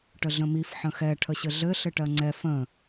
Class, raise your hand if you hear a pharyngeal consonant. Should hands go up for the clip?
yes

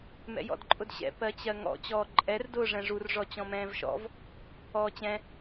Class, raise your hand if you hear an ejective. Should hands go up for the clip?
yes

